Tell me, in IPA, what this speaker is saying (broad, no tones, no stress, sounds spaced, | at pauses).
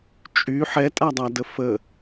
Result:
t͡ʃʼ y ħ ɛ tʼ a dˤ a d ə f ə